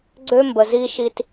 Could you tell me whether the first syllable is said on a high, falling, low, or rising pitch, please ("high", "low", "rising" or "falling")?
high